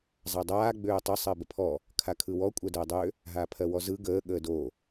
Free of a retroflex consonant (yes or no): yes